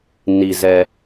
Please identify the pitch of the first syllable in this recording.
low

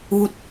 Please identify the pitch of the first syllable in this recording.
rising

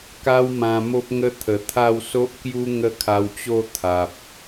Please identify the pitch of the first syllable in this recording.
high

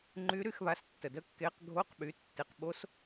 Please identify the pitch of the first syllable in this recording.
rising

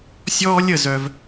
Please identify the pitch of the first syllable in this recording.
high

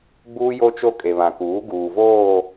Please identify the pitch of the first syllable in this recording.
high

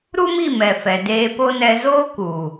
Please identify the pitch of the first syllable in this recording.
high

